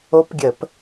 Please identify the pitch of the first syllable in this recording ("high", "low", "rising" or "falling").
rising